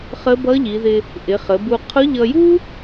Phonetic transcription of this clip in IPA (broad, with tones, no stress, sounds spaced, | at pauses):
χ ə˧˥ b ʌ˧˥ ʎ i˩˧ ð ɪ˧ | ʔ ɪ˩˧ χ ə˩˧ b u˧ qʰ ʊ˧˥ ʎ ʌ˧ j u˥